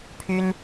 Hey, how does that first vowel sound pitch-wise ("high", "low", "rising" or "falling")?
high